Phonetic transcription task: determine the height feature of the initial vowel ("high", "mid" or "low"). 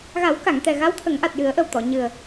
low